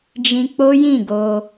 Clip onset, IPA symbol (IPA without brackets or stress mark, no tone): d͡ʒ